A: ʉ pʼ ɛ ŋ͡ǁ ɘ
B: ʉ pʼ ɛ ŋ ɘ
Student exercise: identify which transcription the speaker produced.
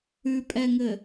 B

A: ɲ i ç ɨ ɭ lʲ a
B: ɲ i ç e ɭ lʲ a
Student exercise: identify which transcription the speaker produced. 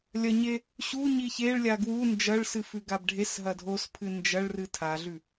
B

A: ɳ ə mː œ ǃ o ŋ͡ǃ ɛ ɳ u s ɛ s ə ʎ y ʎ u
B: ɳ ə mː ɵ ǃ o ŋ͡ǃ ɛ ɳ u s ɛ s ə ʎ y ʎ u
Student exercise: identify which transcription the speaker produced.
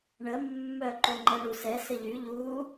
A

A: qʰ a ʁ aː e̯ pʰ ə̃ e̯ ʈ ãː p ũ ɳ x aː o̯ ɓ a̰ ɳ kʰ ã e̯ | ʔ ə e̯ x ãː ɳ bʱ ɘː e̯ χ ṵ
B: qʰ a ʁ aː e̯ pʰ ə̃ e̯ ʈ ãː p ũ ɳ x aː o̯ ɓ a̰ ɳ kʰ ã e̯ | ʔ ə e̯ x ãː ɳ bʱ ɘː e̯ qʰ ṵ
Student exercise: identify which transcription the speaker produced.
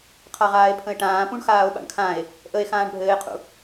B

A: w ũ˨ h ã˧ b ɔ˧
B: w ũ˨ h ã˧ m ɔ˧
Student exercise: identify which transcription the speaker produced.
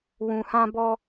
A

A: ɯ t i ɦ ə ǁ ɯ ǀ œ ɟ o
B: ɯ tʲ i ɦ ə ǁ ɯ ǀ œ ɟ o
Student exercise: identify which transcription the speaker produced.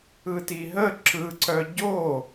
A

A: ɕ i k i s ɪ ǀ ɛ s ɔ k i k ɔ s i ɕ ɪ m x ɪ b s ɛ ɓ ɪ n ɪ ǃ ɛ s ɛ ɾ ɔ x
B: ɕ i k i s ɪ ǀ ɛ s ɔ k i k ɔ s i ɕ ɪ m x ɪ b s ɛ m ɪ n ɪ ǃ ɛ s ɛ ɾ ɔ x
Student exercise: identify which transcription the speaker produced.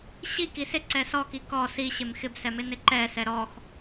B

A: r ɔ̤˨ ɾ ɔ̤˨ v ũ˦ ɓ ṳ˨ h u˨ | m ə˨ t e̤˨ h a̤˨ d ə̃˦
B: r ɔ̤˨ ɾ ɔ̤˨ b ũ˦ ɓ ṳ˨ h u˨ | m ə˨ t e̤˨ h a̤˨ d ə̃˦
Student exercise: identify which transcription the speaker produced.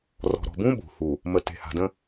B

